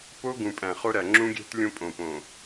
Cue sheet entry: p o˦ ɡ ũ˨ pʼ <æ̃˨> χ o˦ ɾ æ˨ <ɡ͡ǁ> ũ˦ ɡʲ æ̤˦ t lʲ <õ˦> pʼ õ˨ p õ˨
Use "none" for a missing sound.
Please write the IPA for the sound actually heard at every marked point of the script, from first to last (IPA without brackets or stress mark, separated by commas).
æ̃˨, ŋ͡ǁ, õ˦